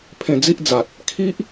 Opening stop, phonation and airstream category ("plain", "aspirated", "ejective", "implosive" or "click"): aspirated